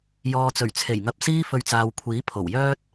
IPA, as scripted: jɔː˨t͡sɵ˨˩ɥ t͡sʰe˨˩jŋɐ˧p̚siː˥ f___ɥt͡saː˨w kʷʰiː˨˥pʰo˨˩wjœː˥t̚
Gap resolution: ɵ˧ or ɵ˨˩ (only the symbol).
ɵ˧